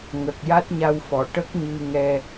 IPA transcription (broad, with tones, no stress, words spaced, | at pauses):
ŋə˨˩k̚ja˦˥t̚ɲa˧wfɔ˨˩˨ ʈə˦˥k̚ɲɨ˧ŋɛ˧